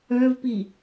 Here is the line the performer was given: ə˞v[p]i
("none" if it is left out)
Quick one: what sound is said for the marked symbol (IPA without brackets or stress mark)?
p